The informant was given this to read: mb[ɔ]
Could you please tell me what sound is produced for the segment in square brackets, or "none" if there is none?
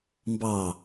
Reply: ɑ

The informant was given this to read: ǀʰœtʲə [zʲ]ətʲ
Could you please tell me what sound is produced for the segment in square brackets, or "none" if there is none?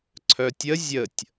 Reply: zʲ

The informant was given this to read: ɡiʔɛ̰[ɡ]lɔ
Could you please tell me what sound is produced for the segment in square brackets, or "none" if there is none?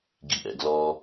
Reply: ɡ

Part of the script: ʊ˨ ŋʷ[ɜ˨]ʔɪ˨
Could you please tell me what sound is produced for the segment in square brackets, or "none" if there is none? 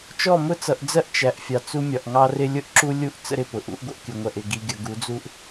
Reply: ɜ˨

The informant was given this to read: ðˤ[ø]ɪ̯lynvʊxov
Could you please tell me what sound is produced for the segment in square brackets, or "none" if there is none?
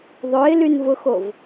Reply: ø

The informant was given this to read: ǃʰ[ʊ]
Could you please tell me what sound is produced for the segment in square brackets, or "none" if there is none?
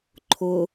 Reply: ʊ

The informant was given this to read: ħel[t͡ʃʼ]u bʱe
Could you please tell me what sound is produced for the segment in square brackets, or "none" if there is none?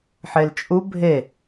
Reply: t͡ʃʼ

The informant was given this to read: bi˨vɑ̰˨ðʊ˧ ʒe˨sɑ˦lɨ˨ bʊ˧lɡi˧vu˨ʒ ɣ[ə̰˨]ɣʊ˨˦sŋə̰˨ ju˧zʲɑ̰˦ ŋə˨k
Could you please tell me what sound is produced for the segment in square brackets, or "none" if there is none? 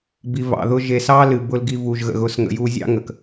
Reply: ə̰˨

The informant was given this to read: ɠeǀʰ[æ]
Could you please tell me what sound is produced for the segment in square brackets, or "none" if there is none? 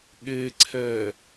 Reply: ɛ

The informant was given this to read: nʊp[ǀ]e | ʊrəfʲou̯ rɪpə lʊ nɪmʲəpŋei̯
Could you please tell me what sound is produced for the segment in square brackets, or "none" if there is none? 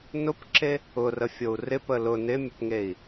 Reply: ǁ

